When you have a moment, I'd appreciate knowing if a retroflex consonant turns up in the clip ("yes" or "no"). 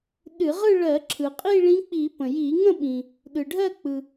yes